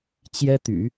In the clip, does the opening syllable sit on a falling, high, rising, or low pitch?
high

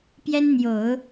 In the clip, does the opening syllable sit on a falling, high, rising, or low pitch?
high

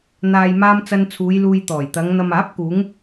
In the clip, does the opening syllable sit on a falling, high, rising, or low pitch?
low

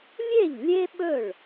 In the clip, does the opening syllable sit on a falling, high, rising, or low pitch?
falling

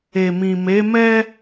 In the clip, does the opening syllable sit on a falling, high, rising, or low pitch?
low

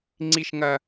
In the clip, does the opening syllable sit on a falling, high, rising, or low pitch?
high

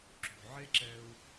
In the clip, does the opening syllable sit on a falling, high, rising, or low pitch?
low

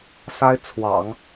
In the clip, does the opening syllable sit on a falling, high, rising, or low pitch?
high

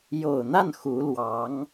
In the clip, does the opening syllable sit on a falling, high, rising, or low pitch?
low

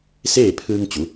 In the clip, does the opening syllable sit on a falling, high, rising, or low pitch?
falling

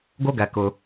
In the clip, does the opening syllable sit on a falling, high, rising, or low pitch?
high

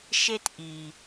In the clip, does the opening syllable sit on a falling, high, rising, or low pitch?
high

